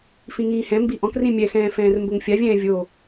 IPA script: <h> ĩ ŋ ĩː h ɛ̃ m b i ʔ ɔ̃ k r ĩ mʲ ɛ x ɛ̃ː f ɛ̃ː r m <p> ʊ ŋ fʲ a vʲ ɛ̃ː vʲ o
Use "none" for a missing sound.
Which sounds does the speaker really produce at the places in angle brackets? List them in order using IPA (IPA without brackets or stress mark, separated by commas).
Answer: f, b